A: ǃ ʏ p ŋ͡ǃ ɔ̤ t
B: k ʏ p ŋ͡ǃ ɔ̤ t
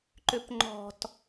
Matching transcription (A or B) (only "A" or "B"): A